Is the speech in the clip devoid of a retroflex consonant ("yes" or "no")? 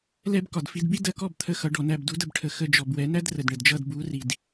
no